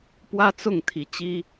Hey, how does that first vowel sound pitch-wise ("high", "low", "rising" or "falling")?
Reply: high